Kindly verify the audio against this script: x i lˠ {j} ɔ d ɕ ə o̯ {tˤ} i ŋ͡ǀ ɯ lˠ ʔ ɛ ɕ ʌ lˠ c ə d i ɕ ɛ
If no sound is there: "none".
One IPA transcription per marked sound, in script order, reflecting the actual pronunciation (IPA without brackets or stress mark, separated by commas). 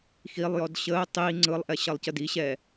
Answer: j, tˤ